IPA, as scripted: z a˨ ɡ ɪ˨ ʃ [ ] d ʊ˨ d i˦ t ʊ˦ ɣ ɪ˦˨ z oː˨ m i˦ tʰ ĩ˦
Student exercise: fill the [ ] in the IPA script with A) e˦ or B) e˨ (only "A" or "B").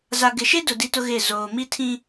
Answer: A